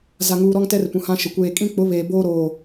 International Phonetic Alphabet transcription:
za˨ŋuː˨ɾɔ˦ŋtɛ˦r pũ˨hã˦ʃɪ˨ kʷeː˨ kʼĩ˦k͡pʊ˨˦ βeː˨boː˦ɾoː˨

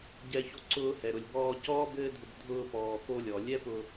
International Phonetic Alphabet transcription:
ɟɛ˧ço˧ ǀʊː˧hɛ˨ ɾʊ˨lʲbɔː˧ cɔː˦bɘː˦dʱʊ˧b dʱʊː˧ pɔː˨ xo˧lʲɔ˨ lʲɛ˦pʊ˧

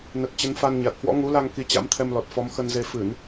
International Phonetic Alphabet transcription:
nə˨˩t̚ t͡ɕə˨˦nfa˧n ɲa˨˩t̚hwɔ̰˧˥ŋu˨˦la˧ŋ ki˨˦t͡ɕa̰˧˥mt̪ʰɛ˧mlɔ˨˩t̚ fɔ˨˦mxə˧nze˧ fɨ˧˩˨n

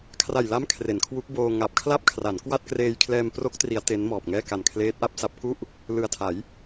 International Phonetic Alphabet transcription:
kʰra˨˩jla˦˥m kʰre˩˦nkʰwu˦˥k̚boː˧ ŋa˨˩p̚kʰla˥˩p̚kʰra˩˦nkwa˥˩t̚ kreː˧jkʰlɛː˧m pro˦˥k̚tri˩˦a̯ te˦˥nmɔː˨˩p̚ŋɛː˥˩ ka˨˩nkʰleː˦˥t̚ʔa˥˩p̚sa˦˥p̚ ku˥˩ʔ | lɯ˨˩a̯tʰa˩˦j

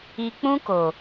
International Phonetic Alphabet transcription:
i˨k͡pũ˧ko˨

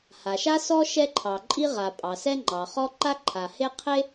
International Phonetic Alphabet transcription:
ha˩ʃa˥sɔ˥ ʃɛ˥ǃʰɑ˩ǃʼi˥ ʁa˩ pʼɑ˩sɛ˥ŋ͡ǃɑ˩χɔ˥ ǃa˥ ǃʰa˩he˥ qʰe˥

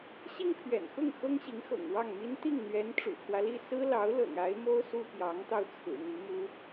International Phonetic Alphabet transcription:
ɕi˥ŋpʰɥɛ̰˨˩nxʊ˥˩ŋ xɤ˥ŋɕi˧˥ŋxɤ̰˨˩ŋ wɑ˥˩ŋmi˥n t̪i˥˩ŋn̪ɥɛ˧˥n ʈ͡ʂṵ˨˩pʰwä˦li˥˩ sɹ̩˥ lɑ˧˥ʊ̯lɤ̰˨˩ŋ a˧˥ɪ̯mo˥ʊ̯ su˥pjɑ˧˥ŋt̪ɑ˧ʊ̯ t͡sʰɹ̩˨˩n̪i˧˥mu˥

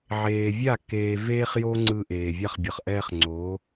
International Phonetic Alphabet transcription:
ʕeː˨vʲa˦˨ keː˨ veː˦χjo˦ ŋ͡ǀɯ˦ ʔeː˨vʲa˦˨χ bʲʌ˨χʔɛː˦χŋ͡ǀoː˨˦

